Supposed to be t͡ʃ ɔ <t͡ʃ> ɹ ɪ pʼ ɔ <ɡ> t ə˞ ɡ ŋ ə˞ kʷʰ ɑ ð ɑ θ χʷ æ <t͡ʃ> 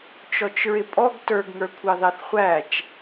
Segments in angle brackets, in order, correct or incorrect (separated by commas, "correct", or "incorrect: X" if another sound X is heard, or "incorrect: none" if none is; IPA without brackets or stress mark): correct, correct, correct